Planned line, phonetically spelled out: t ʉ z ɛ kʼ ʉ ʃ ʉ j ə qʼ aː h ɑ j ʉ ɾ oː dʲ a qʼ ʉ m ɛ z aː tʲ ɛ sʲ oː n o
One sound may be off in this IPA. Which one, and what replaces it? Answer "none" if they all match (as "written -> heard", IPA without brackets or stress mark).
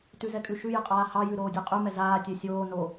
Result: none